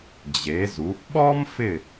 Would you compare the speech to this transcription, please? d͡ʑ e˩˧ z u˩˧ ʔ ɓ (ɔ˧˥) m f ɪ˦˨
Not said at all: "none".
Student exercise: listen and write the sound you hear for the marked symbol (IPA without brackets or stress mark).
ɔ˥